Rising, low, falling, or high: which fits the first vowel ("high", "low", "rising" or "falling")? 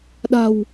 low